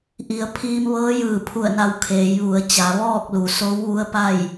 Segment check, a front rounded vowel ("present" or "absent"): absent